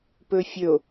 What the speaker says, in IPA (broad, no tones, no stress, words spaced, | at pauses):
pɵfʲɵo̯